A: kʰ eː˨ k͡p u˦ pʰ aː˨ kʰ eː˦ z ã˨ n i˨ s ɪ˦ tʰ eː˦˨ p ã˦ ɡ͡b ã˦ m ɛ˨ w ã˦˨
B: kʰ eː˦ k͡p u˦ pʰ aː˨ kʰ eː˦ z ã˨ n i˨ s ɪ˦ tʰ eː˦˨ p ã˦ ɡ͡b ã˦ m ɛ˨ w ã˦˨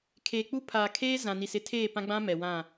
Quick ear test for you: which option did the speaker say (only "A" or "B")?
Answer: A